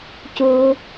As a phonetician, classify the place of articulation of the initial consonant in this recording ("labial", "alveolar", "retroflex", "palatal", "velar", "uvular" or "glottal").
palatal